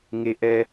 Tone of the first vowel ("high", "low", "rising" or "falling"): low